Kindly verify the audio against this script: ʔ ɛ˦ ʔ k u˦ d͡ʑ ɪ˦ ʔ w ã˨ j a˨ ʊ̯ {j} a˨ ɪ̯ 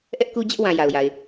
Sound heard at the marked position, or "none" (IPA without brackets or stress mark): j